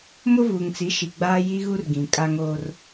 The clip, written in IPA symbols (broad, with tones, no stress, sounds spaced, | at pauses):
m ʊ˦ v uː˨ ŋ t͡s i˨˦ ʃ i˨ ɡ͡b aː˦ j i˦ ɣ u˦ r ɡ ĩ˨ kʼ a˦ ŋ oː˦ r